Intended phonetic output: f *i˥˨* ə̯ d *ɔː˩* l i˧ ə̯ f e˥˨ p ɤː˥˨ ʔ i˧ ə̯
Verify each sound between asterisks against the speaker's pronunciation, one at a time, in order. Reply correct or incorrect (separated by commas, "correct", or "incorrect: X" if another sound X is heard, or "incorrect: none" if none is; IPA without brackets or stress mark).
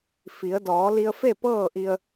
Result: incorrect: i˩˧, incorrect: ɔː˩˧